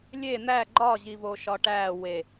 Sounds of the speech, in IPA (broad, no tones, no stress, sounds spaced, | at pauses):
lʲ e n̪ æ ɡ͡ǃ ɒ ʑ i v o ʃ ɒ ʈ æː w e